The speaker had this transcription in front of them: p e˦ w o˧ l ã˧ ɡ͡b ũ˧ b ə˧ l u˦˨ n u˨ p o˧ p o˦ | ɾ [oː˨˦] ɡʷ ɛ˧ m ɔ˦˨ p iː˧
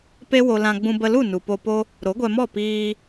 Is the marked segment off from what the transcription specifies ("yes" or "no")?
yes